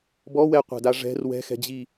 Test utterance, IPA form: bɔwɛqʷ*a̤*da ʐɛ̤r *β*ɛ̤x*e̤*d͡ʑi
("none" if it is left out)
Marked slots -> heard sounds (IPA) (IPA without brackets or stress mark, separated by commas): a̤, w, ɛ̤